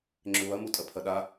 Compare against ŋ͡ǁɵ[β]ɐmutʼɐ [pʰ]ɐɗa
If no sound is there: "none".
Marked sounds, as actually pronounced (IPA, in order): β, pʰ

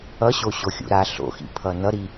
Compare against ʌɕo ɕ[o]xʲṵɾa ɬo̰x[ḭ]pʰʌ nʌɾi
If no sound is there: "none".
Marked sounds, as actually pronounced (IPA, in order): o, ḭ

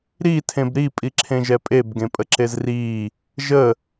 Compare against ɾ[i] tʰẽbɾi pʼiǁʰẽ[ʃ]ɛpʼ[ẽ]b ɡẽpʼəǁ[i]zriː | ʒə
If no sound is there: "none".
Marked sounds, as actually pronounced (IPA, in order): i, ʒ, e, e

